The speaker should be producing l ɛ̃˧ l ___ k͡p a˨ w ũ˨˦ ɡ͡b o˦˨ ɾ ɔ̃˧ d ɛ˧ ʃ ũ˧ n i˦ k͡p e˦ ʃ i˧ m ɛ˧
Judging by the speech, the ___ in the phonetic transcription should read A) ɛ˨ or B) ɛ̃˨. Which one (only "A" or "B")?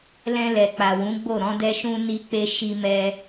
A